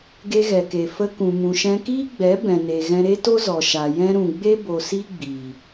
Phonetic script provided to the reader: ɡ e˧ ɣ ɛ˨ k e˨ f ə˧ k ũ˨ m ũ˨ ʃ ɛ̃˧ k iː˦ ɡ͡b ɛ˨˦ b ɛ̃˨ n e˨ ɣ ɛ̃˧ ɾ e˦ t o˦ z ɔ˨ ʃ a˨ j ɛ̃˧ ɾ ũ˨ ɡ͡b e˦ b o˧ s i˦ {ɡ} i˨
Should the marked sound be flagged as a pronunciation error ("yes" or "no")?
yes